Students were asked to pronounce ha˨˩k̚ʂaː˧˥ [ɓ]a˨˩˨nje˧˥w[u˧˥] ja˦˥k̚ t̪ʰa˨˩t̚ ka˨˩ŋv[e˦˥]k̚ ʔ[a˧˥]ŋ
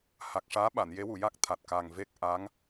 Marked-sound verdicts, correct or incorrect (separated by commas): correct, incorrect, correct, correct